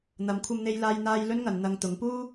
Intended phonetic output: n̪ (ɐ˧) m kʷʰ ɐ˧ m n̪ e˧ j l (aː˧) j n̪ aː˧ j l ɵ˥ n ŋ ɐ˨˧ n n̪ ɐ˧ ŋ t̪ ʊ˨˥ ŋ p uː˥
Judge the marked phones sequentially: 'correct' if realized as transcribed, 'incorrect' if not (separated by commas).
incorrect, correct